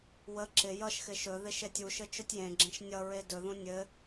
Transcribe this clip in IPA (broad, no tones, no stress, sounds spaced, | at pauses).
w ə ǁ ɪ j ʌ ʃ x ɪ ʃ ɵ ð ɪ ʃ e tʲ u ʃ ɘ t͡ʃ ɵ tʲ j ẽ ɡ͡ǁ ẽ ʃ nʲ ʌ ɹ e d ɵ ð ũ nʲ ɘ